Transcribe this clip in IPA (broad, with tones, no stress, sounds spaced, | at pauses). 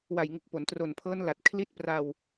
w a˨˩ j ŋ u˨˩ k̚ p o˩˦ n t r o˨˩ n pʰ ɤː˦˥ n l a˨˩ t̚ kʰ l i˦˥ t̚ p r a˧ w